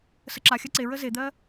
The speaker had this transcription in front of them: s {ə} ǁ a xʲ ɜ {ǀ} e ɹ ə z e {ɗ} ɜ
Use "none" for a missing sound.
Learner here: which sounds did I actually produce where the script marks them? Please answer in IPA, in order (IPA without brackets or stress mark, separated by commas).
ə, ǀ, d̪